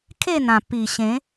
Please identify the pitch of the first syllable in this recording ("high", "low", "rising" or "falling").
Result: falling